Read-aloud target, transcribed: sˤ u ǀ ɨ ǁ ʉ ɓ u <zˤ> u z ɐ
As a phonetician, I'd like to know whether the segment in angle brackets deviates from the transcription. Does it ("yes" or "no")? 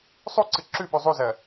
no